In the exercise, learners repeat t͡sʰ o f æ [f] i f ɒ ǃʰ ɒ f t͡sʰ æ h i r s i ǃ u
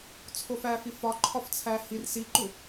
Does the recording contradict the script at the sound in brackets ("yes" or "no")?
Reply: no